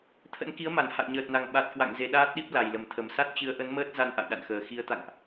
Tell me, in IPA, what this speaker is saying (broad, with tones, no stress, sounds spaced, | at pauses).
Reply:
t̪ʰ ə̰˧˥ n k i˨˦ ə̯ m a˧˩ n h a̰˧˨ j ɲ əː˨˩ t̚ n a˨˩ ŋ ɓ a˨˩ t̚ k w a̰˧˨ ŋ z e˧ ɗ aː˦˥ t̚ ɗ i˦˥ p̚ l a˨˩ j l ə˨˩ m t̪ʰ ə˨˩ m s a˦˥ t̚ t͡ɕ ɨ˨˦ ə̯ ʔ ə˨˦ n m əː˦˥ t̚ z a˧ n ʔ a̰˧˨ j ɗ a̰˧˨ n x əː˨˩ x i˨˦ ə̯ t̪ a̰˧˨ ŋ ʔ